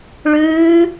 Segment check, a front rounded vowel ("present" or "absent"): absent